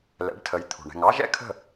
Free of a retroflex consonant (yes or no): no